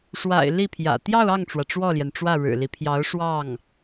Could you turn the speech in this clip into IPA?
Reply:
ʂwa̰˨˩ɪ̯ li˥˩pʰjä̰˨˩ t̪jɑ˥˧ʊ̯ɑ˥˩ŋʈ͡ʂwä˩ ʈ͡ʂwɔ˥˩ljɛ˩nʈ͡ʂwä˥˩ ɻɻ̩˨˩li˦pʰjɑ˧˥ʊ̯ ʂwɑ˥˩ŋ

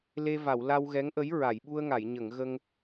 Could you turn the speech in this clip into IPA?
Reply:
le˧va˨˩˨w la˧wɣɛ˧˥ŋʔə˧˥j ɹa˨˩˨jɓu˧ə̯ŋa˨˩˨jɲə˨˩˨ŋ ɣə˧ŋ

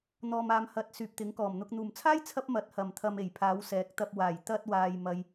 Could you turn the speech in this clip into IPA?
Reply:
n̪ɔː˨maː˨mhɐ˨˥t̚ syː˨p̚t̪ɪ˨˥ŋkɔː˨˩mn̪ʊ˧k̚ n̪uː˨˩mt͡sʰaː˥jt͡sʰɐ˧p̚ mɐ˨˥t̚hɐ˨˩mt̪ʰɐ˨m e˨˩jpʰaː˨˧wsɛː˨˥k̚t̪ɐ˧p̚ waː˨˩jt̪ɐ˧t̚waː˨j mɐ˨j

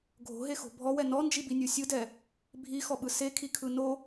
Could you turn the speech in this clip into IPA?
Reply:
ɡʱo̤ɦexo̤ bʱɔwɛ nɔnd͡ʒibinʲu sʲɯdɛ | bʱixɔɓɯ sekʰikʰɯ no

